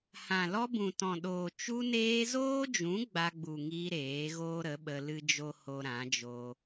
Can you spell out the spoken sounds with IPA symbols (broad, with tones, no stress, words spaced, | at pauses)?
hã˨lɔ˧ bũ˨tɔ̃˨ɗoː˨ t͡ʃu˧neː˧zoː˦d͡ʒũ˨˦ ɡ͡ba˧ɡ͡bu˨ŋiː˧ ɾeː˨˦ɣoː˦ɾə˨˦ ɓə˧lɨ˦d͡ʒo˦ ho˧ɾã˨˦d͡ʒoː˧